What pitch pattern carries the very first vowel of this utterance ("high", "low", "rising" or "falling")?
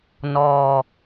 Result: low